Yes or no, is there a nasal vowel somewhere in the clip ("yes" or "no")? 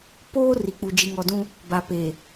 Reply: yes